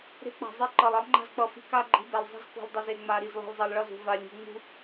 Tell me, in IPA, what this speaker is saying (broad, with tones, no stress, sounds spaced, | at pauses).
ɾ e̤˦ k͡p a̤˨ zˤ e˦ ǃ ʌ˨ lˠ ʌ˦ lˠ ŋ͡ǃ a̤˦ z k͡p ʌ˨ f i̤˦ k a˦ ɡ͡ǃ i̤˦ b ɛ˨ lˠ zˤ i̤˦ z k ṳ˨ lˠ dˤ ʌ˨ z e˨ ŋ͡m a˨ ɾ i˨ z lˠ i̤˨ lˠ zˤ ʌ˨ lˠ ɭ ʌ˦˨ z ṳ˨ v a˨ lʲ ṳ˨ ŋ͡m ṳ˦